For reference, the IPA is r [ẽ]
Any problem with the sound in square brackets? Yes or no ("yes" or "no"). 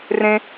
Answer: no